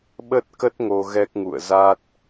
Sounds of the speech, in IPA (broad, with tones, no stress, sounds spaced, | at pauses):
ɓ ə˦˥ t̚ k ə˦˥ t̚ ŋ o˧ ɣ ɛ˦˥ k̚ ŋ ṵ˧˨ ə̯ z a˦˥ t̚